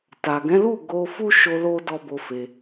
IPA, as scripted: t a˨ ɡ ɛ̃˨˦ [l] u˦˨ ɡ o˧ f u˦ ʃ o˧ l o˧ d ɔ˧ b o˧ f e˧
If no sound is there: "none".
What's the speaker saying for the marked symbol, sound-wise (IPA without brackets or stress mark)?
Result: l